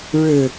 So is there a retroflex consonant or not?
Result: yes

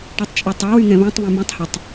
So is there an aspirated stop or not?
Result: no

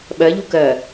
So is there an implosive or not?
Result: yes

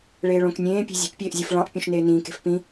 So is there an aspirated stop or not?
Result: no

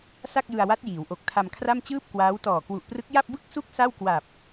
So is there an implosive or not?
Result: no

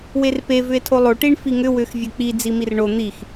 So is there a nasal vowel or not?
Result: no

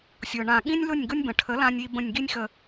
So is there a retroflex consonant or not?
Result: yes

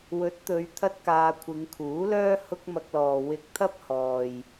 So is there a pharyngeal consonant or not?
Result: no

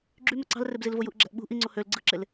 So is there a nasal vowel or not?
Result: no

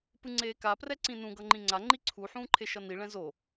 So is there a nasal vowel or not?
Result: yes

